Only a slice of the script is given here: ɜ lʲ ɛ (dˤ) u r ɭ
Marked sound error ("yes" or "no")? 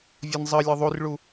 yes